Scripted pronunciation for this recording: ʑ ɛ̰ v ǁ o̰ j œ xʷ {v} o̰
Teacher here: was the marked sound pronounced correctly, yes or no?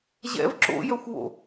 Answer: no